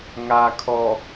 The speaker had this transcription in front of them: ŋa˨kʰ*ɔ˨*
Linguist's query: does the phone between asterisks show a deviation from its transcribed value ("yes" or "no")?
no